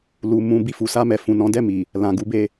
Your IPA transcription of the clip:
lu˨ mũ˧ bi˧fu˨sa˧mɛ˨ fũ˨nɔ̃˨˦dɛ˦˨mi˨ | lã˨ɡu˨˦be˧

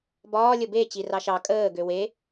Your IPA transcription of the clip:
bɒː lʲəbe t͡ɕirɑʃɑ kʼəː ɡøwe

